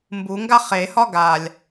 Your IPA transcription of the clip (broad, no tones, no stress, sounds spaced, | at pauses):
m b u ŋ ɡ a χ e h ɒ ɡ a lʲ